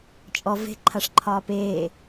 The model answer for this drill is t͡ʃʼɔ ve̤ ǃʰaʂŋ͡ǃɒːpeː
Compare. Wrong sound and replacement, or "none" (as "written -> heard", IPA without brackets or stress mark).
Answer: ŋ͡ǃ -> ǃʰ